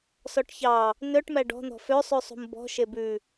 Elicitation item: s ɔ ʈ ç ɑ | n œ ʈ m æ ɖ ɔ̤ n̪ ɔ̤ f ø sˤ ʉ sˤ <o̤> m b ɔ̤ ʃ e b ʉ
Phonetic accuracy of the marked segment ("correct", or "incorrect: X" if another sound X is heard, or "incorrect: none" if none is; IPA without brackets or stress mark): incorrect: ṳ